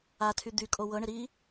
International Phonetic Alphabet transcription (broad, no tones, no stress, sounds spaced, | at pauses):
a tʰ y d̪ y kʼ o w ɤ ɳ ɪ ɾ i